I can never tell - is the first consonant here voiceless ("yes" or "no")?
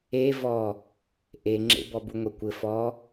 no